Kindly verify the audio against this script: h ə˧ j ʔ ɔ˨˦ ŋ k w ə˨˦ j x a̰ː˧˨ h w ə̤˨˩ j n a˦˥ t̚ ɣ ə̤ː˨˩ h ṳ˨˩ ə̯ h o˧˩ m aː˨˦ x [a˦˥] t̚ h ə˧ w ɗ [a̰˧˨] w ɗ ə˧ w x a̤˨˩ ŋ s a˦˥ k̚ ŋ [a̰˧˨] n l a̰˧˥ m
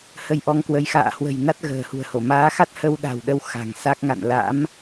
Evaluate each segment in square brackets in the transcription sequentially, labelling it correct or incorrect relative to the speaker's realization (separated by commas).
correct, incorrect, correct